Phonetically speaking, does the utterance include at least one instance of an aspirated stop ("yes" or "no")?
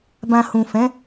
no